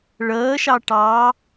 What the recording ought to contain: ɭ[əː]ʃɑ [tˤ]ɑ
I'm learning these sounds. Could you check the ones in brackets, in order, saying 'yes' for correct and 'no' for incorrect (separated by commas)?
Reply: yes, no